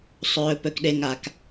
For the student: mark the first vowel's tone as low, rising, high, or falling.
low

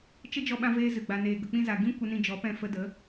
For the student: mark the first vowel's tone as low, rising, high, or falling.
high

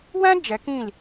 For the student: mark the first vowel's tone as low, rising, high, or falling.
high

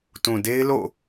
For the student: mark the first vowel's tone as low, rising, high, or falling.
low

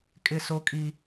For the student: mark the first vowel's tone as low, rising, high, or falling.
high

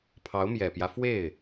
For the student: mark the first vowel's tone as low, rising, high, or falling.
rising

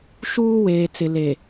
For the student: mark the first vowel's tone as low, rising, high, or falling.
high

